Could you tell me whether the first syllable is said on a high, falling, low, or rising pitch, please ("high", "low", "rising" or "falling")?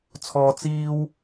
high